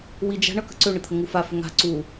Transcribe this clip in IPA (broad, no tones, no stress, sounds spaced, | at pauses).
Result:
w i d͡ʒ a̤ ɳ ʌ k ə̤ ǀ ø ɳ ə t̪ʰ ə ŋ u f a f ʏ ŋ a̤ ǀ u